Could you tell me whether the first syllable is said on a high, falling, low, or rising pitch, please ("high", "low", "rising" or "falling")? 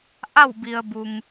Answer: falling